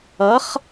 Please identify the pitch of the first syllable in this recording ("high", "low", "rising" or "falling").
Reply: rising